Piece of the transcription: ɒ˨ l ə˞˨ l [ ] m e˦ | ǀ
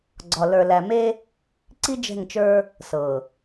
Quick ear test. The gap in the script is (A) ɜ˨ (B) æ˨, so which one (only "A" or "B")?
B